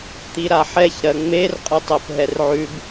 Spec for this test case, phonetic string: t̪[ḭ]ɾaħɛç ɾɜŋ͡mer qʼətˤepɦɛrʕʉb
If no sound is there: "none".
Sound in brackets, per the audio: i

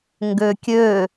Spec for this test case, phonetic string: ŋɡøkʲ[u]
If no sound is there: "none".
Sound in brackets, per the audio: ø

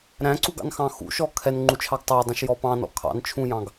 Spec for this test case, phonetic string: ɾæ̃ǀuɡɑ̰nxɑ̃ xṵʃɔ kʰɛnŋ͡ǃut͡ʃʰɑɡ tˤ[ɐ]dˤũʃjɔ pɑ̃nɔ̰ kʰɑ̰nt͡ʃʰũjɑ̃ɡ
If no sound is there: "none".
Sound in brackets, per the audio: æ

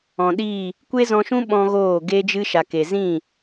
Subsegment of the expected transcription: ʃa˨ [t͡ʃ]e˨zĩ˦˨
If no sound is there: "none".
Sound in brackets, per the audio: k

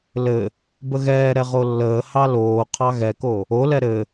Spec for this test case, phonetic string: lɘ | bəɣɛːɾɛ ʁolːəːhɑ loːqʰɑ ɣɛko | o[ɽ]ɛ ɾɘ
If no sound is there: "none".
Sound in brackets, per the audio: l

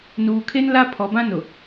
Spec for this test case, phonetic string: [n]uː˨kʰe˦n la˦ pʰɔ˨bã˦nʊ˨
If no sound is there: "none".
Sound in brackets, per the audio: n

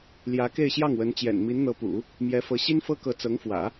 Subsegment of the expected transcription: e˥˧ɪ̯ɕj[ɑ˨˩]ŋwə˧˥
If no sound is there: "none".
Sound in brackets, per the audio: ɑ˥˩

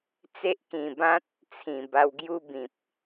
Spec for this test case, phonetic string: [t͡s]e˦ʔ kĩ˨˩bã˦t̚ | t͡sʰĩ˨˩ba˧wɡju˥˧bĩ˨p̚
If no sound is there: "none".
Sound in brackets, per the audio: t͡s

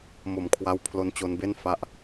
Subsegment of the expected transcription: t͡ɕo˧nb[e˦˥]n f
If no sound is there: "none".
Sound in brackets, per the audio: e˥˩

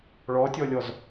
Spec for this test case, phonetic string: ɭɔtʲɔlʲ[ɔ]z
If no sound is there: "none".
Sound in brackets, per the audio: ɔ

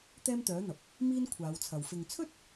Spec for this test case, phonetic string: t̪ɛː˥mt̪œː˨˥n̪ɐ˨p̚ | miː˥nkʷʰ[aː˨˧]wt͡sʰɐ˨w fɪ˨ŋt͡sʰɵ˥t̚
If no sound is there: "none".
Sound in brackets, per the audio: aː˨˧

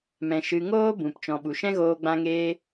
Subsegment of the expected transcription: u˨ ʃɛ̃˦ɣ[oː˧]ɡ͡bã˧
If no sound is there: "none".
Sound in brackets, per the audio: oː˧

